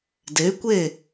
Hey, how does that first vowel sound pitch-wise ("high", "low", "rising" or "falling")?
rising